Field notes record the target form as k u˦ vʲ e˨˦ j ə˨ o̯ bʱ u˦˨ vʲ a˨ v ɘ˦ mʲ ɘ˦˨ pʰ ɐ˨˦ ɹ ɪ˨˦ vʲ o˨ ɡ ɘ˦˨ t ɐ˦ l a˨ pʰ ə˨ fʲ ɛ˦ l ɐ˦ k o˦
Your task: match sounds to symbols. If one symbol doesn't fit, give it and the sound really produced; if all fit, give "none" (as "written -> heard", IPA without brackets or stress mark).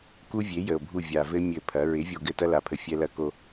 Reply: none